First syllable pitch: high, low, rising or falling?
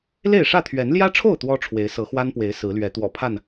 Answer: falling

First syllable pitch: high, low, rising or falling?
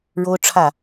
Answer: high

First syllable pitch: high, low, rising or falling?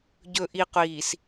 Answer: low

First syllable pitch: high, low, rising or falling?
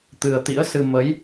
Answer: low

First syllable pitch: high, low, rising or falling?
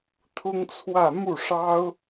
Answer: high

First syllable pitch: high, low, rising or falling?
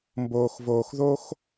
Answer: low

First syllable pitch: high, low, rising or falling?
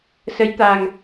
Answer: rising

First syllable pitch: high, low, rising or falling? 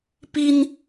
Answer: high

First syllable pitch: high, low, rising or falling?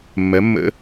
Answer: rising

